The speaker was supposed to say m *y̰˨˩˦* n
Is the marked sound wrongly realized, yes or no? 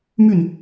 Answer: yes